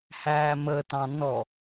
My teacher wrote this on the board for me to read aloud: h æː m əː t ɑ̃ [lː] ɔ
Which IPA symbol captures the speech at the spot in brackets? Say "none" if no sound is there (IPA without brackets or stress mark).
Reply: n